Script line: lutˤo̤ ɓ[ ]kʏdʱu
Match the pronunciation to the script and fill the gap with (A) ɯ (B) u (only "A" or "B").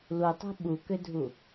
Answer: B